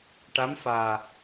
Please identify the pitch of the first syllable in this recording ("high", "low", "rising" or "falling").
rising